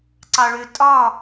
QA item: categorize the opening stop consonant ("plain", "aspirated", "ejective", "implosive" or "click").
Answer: click